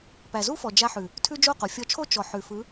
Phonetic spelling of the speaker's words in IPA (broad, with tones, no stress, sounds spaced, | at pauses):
p æ˨ z u˦ f ɔ˨ d͡ʒ a˧ ħ ʉ˨ | tʰ ʉ˦ d͡ʒ o˦˨ q o˨ fʲ ɔ˧ t͡ʃʰ o˦ t͡ʃ ɔ˨ ħ ʉ˨ f ɯ˨˦